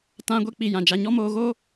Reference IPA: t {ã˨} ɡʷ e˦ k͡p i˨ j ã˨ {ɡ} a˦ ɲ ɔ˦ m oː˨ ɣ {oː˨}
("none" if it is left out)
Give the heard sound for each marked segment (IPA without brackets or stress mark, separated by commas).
ã˦, d͡ʒ, oː˦